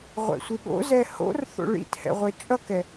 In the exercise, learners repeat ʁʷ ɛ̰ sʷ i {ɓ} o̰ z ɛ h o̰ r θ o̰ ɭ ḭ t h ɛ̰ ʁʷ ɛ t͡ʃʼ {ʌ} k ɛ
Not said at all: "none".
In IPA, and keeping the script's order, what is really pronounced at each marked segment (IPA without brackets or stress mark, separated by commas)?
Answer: ɠ, ʌ